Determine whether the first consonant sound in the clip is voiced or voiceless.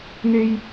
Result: voiced